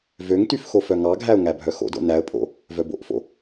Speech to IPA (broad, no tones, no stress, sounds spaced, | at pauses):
v ø ŋ t y f x o f œ ŋ ɑ ɡʱ æ ʊ̯ ŋ æ bʱ œ x o̰ d o̰ n æ ə̯ pʼ o̰ | v œ b o̰ ʔ f o̰